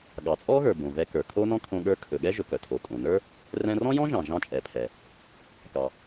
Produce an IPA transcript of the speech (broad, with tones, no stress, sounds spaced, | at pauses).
ɠ ɑ˩ t͡sʼ ɔ˥ ɣ ə˞˩ b õ˩ v ɛ˧ k ə˞˩ kʰ o˥ n ɔ̃˥ kʰ õ˧ ɠ ə˞˧ kʰ ɵ˩ ɠ ɛ˥ ʒ ɵ˩ k œ˩ tʰ o˩ tʼ õ˩ n ə˞˥ | r ɛ̃˧ r ɔ̃˥ j ɔ̃˥ ʒ ɑ̃˩ ʒ ɑ̃˧ t͡ʃʼ ɛ˩ pʰ ɛ˩ | k ɑ˩